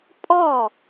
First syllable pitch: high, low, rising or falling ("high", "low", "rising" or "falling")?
falling